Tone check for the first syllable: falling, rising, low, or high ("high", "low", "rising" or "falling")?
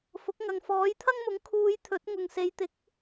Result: rising